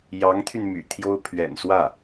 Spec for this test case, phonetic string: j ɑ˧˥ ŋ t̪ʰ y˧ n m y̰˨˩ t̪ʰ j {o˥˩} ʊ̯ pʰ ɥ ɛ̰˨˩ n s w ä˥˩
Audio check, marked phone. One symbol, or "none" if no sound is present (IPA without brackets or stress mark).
o˥